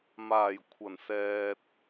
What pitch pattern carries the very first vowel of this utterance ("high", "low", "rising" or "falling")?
low